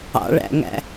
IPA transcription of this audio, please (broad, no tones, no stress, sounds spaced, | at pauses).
ɑ̰ ɭ æ̰ ŋ æ̰